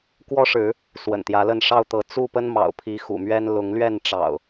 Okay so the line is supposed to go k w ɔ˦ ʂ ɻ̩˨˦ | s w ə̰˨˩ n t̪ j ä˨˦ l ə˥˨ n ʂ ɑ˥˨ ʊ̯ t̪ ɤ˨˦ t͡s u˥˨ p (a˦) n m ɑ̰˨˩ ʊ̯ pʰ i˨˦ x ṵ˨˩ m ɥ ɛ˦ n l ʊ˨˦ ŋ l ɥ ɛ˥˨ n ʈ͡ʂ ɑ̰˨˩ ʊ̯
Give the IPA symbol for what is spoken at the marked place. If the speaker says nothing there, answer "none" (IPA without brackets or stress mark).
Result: ə˦